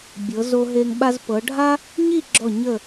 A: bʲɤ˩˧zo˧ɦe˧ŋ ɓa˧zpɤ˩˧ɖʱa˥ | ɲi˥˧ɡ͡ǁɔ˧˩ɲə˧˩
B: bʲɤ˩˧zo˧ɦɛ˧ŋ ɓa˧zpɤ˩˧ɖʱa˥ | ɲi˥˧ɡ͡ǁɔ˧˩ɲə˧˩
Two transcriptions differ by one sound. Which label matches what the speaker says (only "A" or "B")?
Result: A